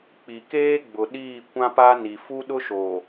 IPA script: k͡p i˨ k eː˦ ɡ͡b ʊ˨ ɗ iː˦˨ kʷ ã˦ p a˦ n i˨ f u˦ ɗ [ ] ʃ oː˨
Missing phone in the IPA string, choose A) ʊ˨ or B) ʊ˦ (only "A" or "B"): B